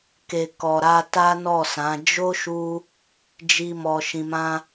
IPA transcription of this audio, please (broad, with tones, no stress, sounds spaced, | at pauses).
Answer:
k e˨ k ɔ˨ ɾ a˧ t a˦ n ɔ˦˨ s ã˨˦ d͡ʒ o˦ ʃ u˧ | d͡ʒ i˦ m ɔ˧ ʃ ĩ˧ m ã˦